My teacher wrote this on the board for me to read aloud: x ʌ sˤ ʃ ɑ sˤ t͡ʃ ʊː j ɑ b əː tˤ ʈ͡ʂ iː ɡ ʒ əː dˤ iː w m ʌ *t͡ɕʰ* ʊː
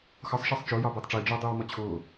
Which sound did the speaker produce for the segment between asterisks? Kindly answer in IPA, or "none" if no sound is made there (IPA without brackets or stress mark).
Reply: t͡ɕʰ